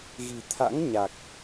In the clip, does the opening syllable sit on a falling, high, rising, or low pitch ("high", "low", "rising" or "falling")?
low